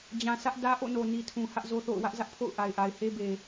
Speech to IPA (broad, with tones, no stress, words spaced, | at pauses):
d͡ʑã˨ sʰä˦ʔ dä˦ ʔo̰˦˨no˨ni˨tʰũ˨ hä˦ʔzo˦θo̰˦˨ʊ̯ wä˦ʔzä˦ʔpʰo̰˦˨ʊ̯ ʔa˨ɪ̯ʔa˨ɪ̯he˦be˨